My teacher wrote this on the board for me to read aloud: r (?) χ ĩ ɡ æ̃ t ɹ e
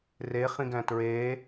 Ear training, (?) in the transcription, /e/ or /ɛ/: e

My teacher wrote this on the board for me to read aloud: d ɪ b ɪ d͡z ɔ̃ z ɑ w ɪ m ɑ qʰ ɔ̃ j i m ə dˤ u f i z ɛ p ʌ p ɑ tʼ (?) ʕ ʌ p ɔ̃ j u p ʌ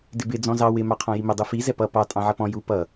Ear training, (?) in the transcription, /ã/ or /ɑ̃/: ɑ̃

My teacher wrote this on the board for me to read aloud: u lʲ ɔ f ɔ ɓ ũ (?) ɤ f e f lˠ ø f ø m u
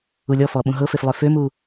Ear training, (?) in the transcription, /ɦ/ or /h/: ɦ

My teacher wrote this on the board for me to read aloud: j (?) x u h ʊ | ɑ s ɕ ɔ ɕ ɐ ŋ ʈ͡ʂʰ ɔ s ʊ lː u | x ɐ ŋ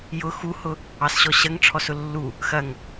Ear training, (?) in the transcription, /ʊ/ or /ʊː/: ʊ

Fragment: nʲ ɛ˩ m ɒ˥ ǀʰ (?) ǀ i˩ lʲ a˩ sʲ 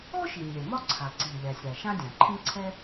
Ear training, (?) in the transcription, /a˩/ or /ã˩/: a˩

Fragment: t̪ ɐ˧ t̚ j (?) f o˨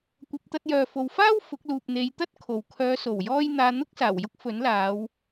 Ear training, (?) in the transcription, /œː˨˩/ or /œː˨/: œː˨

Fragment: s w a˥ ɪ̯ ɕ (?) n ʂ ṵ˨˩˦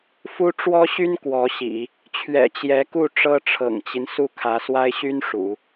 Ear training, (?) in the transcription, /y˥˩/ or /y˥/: y˥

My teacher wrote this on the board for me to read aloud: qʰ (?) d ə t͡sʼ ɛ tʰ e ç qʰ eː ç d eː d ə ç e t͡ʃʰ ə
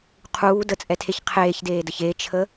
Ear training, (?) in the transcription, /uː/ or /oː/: uː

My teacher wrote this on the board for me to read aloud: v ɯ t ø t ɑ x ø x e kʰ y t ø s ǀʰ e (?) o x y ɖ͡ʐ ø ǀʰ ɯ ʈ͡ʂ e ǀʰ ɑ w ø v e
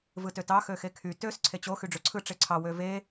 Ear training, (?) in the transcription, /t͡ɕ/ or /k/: t͡ɕ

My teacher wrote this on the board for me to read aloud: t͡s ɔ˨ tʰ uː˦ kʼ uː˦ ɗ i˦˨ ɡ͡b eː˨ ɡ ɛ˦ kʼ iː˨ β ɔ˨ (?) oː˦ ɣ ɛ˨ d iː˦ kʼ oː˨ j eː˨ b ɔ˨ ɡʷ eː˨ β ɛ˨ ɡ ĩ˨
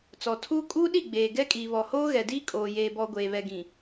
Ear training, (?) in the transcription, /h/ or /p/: h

